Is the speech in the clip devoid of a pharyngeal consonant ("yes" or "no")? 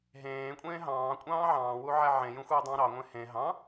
no